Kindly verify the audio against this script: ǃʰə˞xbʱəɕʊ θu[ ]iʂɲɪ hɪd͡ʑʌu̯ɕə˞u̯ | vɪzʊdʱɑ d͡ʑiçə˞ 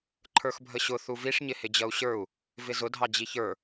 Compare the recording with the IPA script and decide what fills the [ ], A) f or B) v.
B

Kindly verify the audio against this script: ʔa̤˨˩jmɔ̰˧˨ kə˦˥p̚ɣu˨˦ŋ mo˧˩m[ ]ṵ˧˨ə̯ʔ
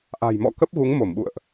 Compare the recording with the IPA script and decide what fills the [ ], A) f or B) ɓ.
B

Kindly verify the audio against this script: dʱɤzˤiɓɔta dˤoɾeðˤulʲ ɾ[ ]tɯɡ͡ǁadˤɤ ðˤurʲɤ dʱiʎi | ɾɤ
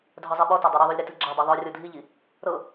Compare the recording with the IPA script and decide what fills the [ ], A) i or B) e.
B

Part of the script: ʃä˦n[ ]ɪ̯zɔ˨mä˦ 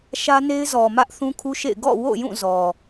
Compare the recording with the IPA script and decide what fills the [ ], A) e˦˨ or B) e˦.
B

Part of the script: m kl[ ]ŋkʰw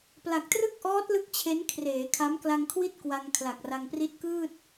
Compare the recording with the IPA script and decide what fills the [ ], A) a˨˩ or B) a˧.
B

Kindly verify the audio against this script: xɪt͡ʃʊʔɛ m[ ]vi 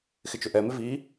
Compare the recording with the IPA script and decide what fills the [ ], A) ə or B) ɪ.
B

